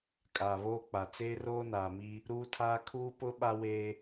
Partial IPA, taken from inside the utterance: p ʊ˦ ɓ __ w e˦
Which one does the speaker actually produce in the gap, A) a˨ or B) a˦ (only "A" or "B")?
B